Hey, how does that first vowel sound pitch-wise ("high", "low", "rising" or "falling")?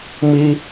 high